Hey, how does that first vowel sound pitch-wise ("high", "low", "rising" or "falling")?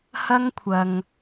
high